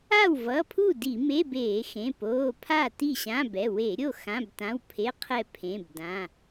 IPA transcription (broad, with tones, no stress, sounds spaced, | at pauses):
a˥˩ w v ʌ˩˧˩ pʰ u˥˩ d i˧˩˧ m e˧˥˧ b eː˧˩˧ x ẽ˩˧˩ p oː˩˧˩ pʰ a˥˩ t i˥˩ ɕ ã˧˥˧ b ɛ˩˧˩ w e˧˩˧ ɾʲ o˥˩ x ã˧˥˧ b t ã˧˥˧ w pʰ e˧˥˧ qʰ ɛ˥˩ pʰ ẽ˩˧˩ b d ã˩˧˩